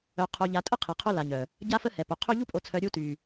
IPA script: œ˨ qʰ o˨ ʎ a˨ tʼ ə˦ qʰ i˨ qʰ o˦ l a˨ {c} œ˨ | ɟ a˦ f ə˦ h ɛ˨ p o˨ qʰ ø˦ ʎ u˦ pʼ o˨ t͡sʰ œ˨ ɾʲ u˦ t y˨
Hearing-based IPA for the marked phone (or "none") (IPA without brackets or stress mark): ɲ